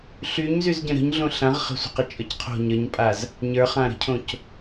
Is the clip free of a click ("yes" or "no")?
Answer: yes